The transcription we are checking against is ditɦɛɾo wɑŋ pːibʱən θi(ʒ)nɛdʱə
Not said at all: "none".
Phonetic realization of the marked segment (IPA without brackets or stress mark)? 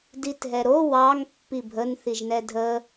ʒ